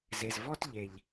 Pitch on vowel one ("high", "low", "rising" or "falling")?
low